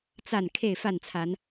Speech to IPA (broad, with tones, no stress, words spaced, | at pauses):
t͡sa˥˨n kʰe˥˨ɪ̯fa˥˨nt͡sʰa˨˦n